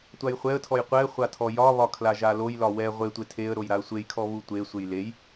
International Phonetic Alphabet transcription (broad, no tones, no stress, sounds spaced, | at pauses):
tʷ a j χʷ ɛ ə̯ tʰ ɔ j qʷ ɛ χʷ a tʰ ɔ j ɒ β ɒ kʰ l a ʒ a l o j l ɒ w ɛ ʁʷ e tʷ e tʰ e ə̯ ɾ o j ɾ a ə̯ sʷ e j kʰ ɔ β u tʷ e sʷ e j l e j